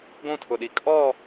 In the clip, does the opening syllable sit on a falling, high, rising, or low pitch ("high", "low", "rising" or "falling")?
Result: falling